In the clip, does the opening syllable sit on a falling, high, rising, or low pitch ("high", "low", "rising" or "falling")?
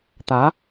rising